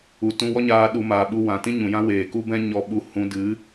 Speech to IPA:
u˨tũ˧wɔ˦ɲaː˧ ɗu˧maː˨ɓu˧ wã˨tĩ˦ ɲũ˨jã˦weː˨ ku˦bɛ̃˦ɲɔ˧ɓu˧ hũ˧dɨ˨˦

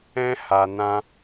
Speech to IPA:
ɛ̃˦ ha˧ nã˦

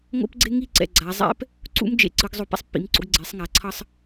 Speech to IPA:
ŋo̰˥pɡ͡ǀe˥ŋi˥˧ ǀɛ̰˧˩ɡ͡ǀa˩˧zˤɛ̰˥p | ǀṵ˥m d͡ʒḛ˧ǀɯ˩˧ɡ zˤo˧˩pɛ̰˥sˤpːḭ˩˧mǀo̰˩˧ɡ ɡ͡ǀe˩˧sˤŋa˩˧ǀʰʌ˧sˤ

